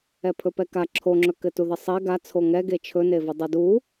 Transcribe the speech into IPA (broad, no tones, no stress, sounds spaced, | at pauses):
ɛ pʰ ɵ p ɛ k a ǁʰ o ŋ͡ǁ ɵ k ɘ t u ð ə sˤ e ɡ a t͡sʰ o ŋ ɛ ɡ e t͡ʃʰ ɵ n e v ɵ dˤ ɘ d u